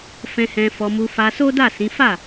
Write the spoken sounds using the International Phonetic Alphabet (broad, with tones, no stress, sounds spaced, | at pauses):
f ɛ̃˧ h ɛ̃˧ f ɔ˧ m u˧ f a˧ s o˦ d a˦˨ s ĩ˨˦ f a˦˨